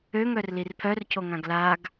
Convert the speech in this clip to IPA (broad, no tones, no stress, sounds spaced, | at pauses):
ø ŋ œ r l i r pʰ œ r cʰ o ŋ ã ɡ l a ɡ